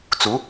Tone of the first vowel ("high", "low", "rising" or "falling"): rising